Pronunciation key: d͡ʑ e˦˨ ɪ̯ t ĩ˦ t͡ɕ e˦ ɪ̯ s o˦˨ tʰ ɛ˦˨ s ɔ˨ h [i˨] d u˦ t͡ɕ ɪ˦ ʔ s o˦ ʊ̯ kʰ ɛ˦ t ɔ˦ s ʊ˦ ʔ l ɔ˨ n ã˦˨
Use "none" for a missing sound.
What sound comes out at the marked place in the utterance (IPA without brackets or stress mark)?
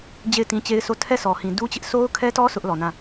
ĩ˨